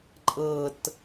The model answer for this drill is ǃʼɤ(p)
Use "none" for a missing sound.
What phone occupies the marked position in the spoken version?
t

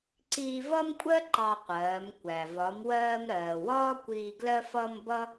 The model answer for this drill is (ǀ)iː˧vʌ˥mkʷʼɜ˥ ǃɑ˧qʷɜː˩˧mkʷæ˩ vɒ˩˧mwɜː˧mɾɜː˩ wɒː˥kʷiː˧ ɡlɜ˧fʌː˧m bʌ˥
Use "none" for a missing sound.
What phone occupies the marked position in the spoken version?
ǀ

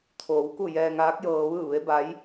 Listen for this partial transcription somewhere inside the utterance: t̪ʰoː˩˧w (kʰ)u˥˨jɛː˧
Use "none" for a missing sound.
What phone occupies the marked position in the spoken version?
k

